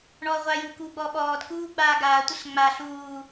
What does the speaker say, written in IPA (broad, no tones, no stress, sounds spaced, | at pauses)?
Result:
ɳ ɔː ʁʷ aː j u k uː ɡ͡b ɔː ɓ ɔː d k uː ɡ͡b aː ɡ aː tʷ ə ɬ ŋ͡m a ɬ uː